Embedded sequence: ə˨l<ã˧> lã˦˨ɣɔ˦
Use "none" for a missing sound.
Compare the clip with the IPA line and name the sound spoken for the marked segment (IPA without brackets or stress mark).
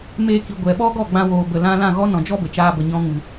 ã˧